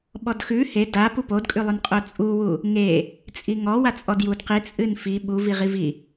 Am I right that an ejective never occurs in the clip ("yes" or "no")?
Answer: no